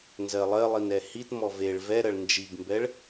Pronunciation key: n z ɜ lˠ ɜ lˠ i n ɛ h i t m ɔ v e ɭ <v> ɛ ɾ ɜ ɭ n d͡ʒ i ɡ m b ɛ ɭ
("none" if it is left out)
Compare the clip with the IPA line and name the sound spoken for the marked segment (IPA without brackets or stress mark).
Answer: v